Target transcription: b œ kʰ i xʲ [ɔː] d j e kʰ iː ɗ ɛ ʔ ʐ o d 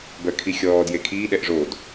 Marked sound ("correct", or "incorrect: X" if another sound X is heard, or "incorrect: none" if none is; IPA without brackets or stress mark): correct